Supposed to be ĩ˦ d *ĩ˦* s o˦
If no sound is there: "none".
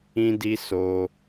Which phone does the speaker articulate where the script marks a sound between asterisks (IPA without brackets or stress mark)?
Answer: i˦